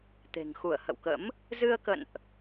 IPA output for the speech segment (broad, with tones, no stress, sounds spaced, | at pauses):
t̪ e̤˨˩ ŋ x u˧˩ ə̯ h ə̰˧˨ w k ə̰˧˥ m | z ɨ˧ ə̯ k ə̰˧˨ n ʔ